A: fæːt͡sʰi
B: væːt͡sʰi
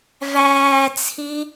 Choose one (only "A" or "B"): B